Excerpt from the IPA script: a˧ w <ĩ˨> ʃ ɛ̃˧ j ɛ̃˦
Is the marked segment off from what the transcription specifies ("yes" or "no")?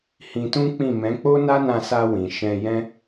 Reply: no